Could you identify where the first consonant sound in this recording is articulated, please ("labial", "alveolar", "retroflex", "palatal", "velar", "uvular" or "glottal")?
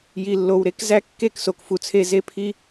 palatal